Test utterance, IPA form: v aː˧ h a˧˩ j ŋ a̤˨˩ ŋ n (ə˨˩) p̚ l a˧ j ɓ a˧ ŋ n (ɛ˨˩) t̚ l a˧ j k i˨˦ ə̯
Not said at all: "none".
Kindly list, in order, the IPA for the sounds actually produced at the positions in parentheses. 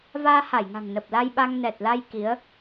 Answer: ə˨˩, ɛ˨˩

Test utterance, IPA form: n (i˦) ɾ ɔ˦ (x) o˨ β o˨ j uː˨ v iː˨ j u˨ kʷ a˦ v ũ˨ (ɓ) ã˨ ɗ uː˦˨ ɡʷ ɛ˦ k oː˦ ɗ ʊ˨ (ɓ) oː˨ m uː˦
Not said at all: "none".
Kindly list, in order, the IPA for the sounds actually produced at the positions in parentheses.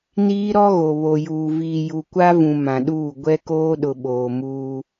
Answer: iː˦, ɣ, m, ɓ

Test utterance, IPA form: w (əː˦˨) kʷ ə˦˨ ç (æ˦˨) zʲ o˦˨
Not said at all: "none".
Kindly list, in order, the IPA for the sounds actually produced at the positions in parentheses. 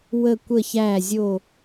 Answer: ə˦˨, æ˦˨

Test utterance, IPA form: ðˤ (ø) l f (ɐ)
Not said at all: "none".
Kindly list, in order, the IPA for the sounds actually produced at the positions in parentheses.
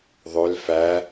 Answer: ø, æ

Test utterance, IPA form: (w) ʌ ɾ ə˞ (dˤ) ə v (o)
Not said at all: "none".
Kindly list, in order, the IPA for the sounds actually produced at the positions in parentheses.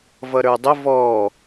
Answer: v, dˤ, ɔ

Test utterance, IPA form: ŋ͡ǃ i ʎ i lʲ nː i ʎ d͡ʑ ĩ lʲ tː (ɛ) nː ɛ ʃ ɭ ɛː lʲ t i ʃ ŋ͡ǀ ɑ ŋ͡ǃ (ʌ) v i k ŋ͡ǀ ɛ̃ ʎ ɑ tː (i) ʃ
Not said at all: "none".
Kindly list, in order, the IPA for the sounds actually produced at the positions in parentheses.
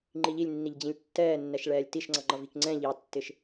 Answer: ɛː, ʌ, ɪ

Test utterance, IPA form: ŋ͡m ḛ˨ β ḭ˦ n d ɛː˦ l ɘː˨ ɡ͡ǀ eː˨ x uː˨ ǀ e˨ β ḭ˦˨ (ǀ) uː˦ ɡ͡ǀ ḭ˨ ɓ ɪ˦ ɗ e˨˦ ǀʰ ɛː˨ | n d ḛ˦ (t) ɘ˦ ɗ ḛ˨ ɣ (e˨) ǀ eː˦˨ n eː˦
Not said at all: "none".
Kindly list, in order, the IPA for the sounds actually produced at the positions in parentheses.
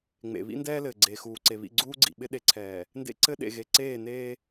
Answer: ɡ͡ǀ, ǀ, e˨

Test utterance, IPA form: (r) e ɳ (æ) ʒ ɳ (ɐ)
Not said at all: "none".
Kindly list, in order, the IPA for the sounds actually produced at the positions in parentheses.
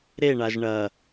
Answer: ɾ, a, ɐ

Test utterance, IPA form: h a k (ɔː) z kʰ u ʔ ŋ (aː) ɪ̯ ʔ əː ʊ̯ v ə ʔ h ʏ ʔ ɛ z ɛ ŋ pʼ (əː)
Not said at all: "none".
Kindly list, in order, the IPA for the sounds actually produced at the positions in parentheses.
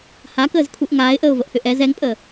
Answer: əː, aː, əː

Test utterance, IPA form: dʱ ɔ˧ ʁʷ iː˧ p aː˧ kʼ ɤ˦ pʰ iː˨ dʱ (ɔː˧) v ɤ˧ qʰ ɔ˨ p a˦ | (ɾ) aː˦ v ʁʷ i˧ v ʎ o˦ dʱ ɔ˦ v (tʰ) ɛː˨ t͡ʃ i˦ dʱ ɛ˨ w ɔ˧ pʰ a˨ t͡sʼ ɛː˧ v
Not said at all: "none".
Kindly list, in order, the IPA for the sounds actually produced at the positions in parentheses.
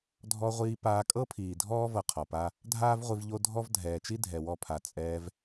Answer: ɔː˦, dʱ, dʱ

